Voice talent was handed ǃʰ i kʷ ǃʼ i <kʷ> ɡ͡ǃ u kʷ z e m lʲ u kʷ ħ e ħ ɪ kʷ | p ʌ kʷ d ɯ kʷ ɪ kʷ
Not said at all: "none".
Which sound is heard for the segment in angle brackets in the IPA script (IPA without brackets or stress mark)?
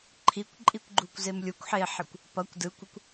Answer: kʷ